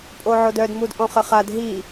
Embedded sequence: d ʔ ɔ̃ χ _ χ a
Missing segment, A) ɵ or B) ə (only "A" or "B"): B